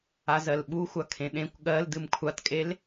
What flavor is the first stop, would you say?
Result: implosive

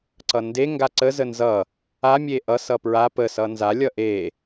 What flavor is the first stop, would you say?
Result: click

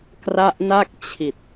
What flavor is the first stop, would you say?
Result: plain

